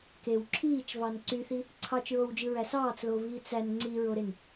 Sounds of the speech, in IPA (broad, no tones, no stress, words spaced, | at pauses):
kew ǁʰiːt͡ʃvɑn ǀyθi | ǀʰɑt͡ʃɹowd͡ʒɯɹæ sɑːt͡sloviː t͡sæn ŋ͡ǀiɹoɾen